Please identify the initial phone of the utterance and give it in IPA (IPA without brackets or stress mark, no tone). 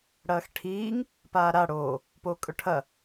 ɽ